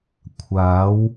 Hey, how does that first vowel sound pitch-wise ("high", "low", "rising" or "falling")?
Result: rising